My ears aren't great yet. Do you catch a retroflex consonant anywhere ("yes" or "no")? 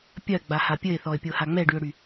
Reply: yes